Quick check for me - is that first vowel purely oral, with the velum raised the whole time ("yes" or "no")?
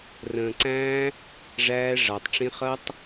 no